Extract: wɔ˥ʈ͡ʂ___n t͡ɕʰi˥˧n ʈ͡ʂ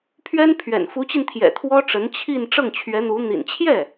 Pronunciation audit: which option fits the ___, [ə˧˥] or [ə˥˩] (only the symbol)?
ə˧˥